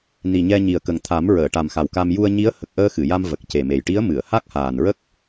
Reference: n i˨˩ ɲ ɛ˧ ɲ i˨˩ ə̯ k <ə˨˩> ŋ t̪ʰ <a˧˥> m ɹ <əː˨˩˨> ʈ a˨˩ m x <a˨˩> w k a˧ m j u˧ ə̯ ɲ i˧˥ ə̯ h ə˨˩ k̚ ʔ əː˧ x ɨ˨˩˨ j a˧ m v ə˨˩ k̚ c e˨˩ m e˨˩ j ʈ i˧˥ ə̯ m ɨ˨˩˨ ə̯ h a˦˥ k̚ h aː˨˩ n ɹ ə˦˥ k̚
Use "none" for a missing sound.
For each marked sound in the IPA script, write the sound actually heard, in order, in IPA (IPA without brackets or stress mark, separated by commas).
ə˨˩, a˨˩˦, əː˨˩˨, a˨˩